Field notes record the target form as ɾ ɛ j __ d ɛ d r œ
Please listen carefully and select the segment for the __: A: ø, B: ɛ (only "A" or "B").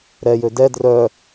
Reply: A